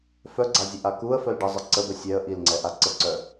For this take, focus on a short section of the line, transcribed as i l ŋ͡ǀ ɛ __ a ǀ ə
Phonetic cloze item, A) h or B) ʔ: B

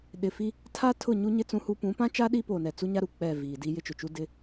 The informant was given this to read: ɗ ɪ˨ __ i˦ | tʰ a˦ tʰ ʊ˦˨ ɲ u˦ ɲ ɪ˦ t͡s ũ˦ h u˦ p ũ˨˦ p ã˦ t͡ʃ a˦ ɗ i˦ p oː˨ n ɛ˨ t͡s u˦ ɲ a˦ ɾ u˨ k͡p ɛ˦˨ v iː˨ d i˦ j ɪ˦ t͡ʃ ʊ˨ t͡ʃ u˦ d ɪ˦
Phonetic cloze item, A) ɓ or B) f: B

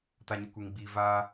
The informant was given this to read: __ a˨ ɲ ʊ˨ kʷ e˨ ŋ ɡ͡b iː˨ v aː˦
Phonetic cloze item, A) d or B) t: B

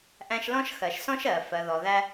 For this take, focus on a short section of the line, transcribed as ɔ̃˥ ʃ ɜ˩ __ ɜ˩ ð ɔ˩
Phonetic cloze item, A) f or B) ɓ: A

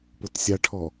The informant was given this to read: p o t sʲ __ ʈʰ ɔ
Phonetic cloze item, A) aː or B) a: B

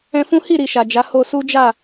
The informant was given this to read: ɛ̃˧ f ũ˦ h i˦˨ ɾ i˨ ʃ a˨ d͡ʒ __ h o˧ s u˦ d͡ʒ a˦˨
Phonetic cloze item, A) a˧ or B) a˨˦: B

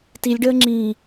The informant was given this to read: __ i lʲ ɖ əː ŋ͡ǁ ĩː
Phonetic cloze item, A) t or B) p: A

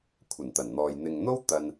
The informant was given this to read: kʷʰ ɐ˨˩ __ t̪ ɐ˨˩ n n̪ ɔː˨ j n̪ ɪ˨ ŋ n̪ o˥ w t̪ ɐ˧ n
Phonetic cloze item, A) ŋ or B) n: B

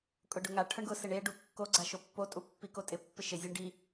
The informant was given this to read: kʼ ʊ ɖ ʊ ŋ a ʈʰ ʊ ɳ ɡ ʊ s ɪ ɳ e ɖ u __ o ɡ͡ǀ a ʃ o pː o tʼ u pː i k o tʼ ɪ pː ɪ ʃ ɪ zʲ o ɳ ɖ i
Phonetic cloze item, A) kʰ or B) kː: B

